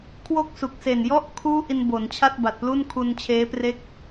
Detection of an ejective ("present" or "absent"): absent